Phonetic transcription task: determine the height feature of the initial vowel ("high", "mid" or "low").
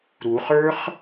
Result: high